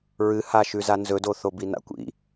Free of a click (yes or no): yes